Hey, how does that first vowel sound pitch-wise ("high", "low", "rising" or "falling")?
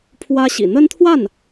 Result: high